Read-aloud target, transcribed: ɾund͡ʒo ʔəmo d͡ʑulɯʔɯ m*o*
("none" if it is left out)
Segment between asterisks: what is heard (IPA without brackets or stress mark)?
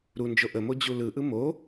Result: o